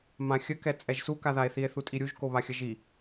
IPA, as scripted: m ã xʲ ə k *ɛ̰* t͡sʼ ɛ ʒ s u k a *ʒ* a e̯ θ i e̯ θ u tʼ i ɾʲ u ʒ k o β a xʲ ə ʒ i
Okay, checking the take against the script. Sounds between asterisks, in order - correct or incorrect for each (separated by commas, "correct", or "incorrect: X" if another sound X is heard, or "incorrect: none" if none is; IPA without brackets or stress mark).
incorrect: ɛ, incorrect: ð